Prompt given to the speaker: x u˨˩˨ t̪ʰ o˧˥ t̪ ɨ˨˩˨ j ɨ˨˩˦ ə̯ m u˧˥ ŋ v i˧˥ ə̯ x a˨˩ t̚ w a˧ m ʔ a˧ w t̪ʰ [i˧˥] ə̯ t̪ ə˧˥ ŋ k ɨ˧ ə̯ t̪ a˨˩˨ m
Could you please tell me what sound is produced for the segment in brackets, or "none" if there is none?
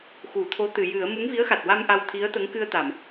i˧˥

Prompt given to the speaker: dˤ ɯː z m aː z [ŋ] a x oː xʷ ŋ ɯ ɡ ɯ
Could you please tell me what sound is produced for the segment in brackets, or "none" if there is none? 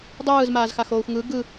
x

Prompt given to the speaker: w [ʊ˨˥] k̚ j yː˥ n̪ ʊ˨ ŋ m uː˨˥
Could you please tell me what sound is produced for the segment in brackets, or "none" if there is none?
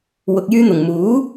ʊ˧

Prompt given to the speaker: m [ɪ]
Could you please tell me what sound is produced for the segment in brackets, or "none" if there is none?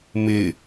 ɪ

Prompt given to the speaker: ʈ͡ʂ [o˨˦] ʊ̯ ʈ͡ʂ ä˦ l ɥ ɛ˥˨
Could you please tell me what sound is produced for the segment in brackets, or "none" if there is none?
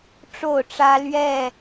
o˥˨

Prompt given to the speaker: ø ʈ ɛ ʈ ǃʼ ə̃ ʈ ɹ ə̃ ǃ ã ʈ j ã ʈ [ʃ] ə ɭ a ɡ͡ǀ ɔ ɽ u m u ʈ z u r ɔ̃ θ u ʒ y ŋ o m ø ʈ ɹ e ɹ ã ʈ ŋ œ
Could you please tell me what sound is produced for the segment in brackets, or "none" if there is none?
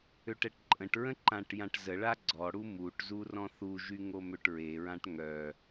z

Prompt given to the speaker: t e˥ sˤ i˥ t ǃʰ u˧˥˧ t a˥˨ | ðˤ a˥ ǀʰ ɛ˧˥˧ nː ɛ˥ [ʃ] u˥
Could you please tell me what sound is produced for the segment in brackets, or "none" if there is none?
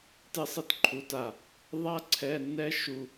ʃ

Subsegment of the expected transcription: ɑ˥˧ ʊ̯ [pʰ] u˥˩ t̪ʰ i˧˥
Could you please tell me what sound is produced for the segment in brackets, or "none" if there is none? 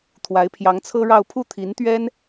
pʰ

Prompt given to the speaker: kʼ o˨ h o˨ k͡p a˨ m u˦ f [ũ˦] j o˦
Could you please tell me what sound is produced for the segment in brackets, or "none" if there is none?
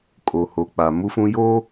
ũ˦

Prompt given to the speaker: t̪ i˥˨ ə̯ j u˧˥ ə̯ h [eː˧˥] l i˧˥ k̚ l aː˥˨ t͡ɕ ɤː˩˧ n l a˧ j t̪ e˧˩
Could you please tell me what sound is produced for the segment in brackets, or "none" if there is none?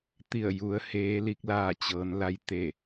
eː˧˥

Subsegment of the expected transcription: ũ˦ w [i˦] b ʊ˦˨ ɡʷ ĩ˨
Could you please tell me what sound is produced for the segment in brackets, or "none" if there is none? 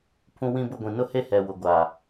ĩ˦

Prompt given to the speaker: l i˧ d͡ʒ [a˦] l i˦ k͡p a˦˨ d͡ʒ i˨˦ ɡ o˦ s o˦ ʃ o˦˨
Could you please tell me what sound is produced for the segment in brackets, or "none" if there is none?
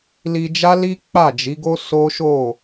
a˦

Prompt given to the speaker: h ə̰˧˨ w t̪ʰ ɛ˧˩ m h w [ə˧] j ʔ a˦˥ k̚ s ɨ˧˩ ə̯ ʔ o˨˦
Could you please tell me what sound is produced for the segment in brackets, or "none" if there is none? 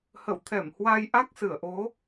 a˧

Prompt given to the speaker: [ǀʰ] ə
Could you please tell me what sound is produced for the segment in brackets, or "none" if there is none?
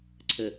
ǀʰ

